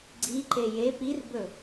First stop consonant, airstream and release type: click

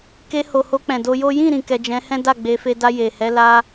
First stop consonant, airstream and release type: plain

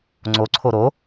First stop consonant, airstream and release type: click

